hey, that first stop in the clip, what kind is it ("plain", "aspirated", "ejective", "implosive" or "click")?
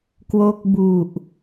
plain